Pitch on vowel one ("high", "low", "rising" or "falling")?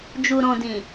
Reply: low